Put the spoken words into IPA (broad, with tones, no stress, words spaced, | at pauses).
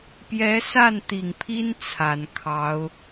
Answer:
pjɛ˧˥sa˥˩nt̪i˨˩ŋpʰi˥n t͡sʰa˨˩nkʰɑ˧˥ʊ̯